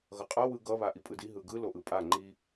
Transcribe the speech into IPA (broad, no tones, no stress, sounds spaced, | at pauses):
ɣ ʌ qʼ a w ɯ ɡ ʌ β a ʔ i pʼ ɯ d i ɦ ɯ ɡ ɯ l o ʔ ɯ pʼ a ŋ͡ǃ i